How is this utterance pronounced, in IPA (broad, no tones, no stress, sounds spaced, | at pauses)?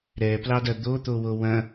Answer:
ɾ ɛ p l ɑ d ɐ d̪ o t̪ o w o w ɐ̃